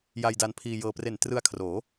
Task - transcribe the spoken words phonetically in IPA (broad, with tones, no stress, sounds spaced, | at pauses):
j a˧ j d a˧ n pʰ iː˧ j ɤː˧ p r e˨˩ n t r ɯ˧ a̯ kʰ r oː˩˦